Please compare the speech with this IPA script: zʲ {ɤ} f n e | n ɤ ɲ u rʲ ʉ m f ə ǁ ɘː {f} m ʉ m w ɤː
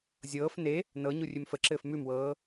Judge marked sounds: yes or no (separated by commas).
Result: no, yes